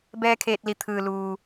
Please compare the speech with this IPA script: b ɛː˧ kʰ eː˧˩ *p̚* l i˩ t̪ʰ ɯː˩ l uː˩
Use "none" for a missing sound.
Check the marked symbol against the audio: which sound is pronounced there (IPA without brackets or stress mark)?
t̚